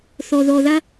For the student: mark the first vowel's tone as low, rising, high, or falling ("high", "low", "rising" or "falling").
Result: low